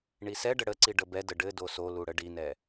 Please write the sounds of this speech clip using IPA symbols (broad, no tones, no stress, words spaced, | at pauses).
ɳisɛɖə ɽəǀi ɖəbɛdə ɖɘ dosolu ɽəɖinɛ